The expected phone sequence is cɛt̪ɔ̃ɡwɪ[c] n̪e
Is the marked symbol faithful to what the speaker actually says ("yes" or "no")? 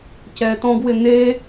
no